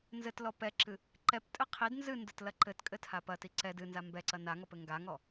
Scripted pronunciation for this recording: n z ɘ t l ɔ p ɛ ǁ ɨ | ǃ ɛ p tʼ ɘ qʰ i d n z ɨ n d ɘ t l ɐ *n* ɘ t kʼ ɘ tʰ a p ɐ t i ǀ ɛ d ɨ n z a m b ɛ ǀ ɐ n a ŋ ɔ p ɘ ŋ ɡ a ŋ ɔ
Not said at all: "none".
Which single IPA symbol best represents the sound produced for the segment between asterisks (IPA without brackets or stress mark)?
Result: ǃ